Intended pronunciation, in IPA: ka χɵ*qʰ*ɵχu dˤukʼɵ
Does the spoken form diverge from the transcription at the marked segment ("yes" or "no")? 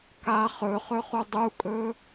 yes